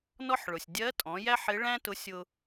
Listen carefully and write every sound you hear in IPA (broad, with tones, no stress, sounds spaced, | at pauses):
n ɔ˥ ħ ɭ ʊ˩ sʲ dʲ ɜ˧˥ tʼ ɔ̃˩˧ j æ˥ ħ ɪ˧˥ ɭ æ̃˥ t ʊ˧˥ sʲ ʊ˧